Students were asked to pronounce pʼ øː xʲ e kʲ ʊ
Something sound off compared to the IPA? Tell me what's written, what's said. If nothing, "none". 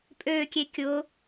xʲ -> kʲ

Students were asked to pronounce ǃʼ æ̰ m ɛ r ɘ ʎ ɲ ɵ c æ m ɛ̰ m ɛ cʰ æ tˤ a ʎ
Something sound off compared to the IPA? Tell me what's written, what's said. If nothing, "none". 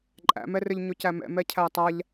none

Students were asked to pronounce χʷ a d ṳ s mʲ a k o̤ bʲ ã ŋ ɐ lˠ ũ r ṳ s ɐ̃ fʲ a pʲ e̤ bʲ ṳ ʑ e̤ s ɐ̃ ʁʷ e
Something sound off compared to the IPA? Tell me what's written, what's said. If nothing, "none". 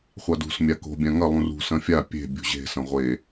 none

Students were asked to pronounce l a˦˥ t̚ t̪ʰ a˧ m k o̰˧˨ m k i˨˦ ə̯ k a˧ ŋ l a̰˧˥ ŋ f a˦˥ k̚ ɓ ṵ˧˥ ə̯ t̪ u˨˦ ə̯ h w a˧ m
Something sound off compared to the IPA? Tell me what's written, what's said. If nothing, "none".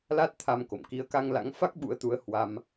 none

